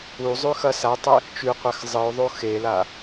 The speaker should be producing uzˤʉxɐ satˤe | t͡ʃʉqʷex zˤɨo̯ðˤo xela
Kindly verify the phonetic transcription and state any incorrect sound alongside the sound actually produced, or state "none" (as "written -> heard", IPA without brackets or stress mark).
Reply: none